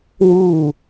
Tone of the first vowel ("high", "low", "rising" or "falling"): falling